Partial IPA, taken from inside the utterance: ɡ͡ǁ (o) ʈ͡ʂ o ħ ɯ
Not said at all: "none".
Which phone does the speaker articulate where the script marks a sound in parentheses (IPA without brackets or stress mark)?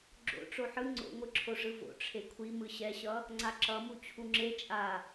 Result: o̰